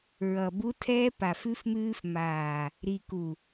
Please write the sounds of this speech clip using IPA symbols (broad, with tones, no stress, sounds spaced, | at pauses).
ɹ ʌ˨ b u˦ tʰ ɛː˦ p a˨ f ʉ˦ f m ʉː˦ f m aː˨ | ɾ i˨ k u˨